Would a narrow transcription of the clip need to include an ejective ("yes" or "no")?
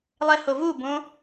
no